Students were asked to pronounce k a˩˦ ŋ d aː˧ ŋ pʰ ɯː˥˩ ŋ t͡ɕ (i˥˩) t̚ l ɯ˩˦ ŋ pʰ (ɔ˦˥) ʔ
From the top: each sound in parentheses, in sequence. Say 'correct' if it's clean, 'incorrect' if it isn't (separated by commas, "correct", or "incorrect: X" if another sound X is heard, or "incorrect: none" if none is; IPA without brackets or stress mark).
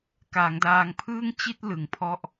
correct, incorrect: ɔ˥˩